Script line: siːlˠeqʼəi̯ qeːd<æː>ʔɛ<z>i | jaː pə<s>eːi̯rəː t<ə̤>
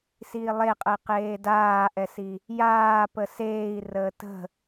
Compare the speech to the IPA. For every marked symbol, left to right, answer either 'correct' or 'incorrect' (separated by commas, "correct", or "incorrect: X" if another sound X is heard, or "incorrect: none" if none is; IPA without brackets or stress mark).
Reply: incorrect: aː, incorrect: s, correct, correct